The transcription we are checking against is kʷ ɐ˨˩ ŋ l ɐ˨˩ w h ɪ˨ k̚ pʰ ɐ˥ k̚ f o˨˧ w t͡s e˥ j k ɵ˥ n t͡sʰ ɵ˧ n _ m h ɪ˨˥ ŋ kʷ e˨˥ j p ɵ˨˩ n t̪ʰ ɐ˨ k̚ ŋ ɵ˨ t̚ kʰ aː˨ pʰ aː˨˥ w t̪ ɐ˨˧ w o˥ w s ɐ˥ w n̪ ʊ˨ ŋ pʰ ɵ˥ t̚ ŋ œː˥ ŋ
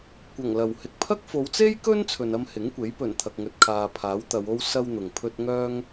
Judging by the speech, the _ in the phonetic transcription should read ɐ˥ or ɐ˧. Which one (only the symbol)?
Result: ɐ˥